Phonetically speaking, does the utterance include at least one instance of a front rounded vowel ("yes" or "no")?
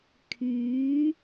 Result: yes